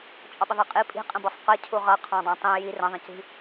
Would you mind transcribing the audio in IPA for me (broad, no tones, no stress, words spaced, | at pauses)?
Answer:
t͡ʃʼɒɓɪðˤæqʼi pʼi̤ qʼə̃bɒsˤqɜ cʰuʁʌqʰɑ̃dˤɑ̃ tˤĩ ji rə̃ðˤə̃ci̤